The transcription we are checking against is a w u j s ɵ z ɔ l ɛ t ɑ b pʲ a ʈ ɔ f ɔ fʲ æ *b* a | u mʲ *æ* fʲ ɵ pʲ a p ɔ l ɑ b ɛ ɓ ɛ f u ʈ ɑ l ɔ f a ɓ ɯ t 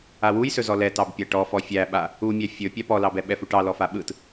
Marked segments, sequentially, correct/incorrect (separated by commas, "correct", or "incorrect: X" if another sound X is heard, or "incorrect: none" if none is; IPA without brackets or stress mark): incorrect: ɓ, correct